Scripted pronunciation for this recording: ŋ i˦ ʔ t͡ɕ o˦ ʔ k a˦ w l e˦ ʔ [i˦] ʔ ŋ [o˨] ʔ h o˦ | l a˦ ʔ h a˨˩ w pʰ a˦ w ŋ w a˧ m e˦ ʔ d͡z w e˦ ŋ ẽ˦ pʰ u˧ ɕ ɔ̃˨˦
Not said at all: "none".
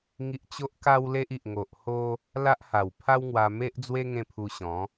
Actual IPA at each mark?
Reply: i˨, o˨

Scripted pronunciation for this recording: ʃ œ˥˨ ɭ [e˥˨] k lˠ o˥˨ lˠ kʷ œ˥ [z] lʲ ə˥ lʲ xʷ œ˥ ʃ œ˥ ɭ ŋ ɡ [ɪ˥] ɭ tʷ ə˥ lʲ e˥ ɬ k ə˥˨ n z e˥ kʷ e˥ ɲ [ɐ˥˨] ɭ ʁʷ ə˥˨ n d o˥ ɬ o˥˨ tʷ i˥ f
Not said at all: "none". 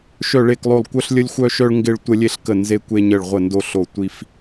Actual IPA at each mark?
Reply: e˥˨, ɬ, ɪ˥, ə˥˨

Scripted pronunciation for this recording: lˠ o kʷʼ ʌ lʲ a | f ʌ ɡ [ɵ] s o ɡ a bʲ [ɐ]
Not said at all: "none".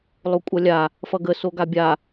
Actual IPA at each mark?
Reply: ə, a

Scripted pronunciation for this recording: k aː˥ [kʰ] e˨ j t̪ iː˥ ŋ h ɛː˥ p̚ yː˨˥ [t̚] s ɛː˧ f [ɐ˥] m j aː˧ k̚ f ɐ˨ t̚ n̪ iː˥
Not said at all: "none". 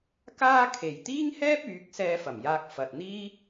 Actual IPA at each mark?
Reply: kʰ, k̚, ɐ˨˩

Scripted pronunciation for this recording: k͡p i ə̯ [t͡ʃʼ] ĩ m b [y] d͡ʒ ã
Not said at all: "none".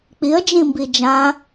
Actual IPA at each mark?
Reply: d͡ʒ, i

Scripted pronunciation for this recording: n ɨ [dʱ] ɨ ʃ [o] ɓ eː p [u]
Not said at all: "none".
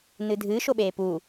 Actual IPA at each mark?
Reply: dʱ, o, u

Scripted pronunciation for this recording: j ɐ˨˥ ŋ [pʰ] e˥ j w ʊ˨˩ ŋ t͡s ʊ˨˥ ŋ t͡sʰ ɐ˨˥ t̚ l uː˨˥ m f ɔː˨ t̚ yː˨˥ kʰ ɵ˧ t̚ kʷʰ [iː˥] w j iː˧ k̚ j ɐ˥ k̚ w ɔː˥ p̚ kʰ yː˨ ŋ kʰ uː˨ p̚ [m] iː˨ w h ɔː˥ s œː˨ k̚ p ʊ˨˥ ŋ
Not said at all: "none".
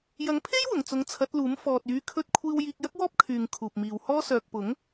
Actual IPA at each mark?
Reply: pʰ, iː˧, m

